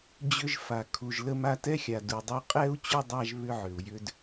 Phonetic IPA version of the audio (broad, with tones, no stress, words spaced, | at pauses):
d͡ʑʏ˦ʒfa˨ kʰu˨ʒlə˦ma˦ tɛ˥xʲa˨du˨dˤo˦ qʼɛ˥u̯ t͡ɕʏ˥dˤa˦ʒ βʏ˦ʕʏ˩u̯jʏ˦d